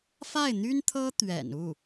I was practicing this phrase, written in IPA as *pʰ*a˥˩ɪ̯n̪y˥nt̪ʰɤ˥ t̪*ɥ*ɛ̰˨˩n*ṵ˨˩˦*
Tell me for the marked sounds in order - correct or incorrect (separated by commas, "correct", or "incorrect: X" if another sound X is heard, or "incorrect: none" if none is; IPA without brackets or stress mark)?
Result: incorrect: f, correct, incorrect: u˥˩